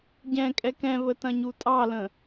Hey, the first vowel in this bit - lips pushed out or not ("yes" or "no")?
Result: no